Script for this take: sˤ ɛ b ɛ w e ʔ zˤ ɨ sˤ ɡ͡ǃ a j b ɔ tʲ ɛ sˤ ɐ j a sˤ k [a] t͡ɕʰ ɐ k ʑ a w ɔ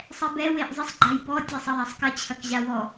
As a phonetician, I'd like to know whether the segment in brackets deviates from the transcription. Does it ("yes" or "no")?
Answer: yes